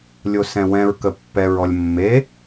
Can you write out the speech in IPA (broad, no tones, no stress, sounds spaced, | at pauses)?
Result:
lʲ o s ɛ̃ w ɛ̃ ɹ k ə pː ɛ ɹ ɔ lʲ mː e